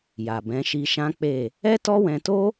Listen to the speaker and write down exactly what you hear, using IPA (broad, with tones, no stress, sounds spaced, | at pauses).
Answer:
j a˨ b ɛ̃˨˦ ʃ i˧ ʃ ã˦ k͡p e˦˨ | ɛ˦ t ɔ˦ w ɛ̃˧ t o˦